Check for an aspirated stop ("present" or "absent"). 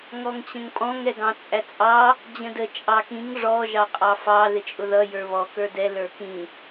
absent